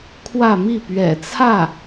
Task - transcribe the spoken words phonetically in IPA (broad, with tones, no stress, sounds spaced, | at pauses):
kʰ w ä˥˧ m i˥˩ p ɥ ɛ̰˨˩ t͡sʰ ä˥˩